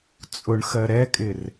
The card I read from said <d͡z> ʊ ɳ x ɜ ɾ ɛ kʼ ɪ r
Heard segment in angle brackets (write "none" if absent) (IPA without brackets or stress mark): t͡sʼ